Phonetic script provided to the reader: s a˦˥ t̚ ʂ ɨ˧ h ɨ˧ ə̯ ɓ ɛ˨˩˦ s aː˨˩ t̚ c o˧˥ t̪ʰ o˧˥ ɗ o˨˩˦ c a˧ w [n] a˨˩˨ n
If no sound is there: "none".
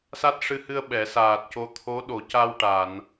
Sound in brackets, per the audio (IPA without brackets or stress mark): ʈ